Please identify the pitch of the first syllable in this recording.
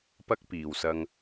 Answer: high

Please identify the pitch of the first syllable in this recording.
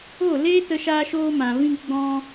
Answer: falling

